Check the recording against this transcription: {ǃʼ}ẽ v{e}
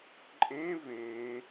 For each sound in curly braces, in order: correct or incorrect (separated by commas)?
correct, incorrect